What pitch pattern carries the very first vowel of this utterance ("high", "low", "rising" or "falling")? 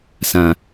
low